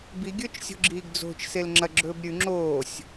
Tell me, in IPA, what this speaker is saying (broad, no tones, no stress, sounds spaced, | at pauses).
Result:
b i ɡʲ ɵː t͡ʃ sʲ o̤ ɡ͡ǁ iː ɡ d͡z o̤ t͡ʃ s e l ŋ͡ǁ ɐ ɡ͡ǁ ɵː b ɾʲ ʉ ŋ͡ǁ oː sʲ